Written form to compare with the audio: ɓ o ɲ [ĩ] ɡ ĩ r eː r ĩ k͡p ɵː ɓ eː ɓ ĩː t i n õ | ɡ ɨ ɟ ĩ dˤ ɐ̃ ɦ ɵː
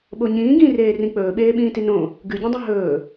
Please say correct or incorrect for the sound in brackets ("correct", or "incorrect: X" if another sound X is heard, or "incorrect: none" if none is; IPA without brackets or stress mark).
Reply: incorrect: ĩː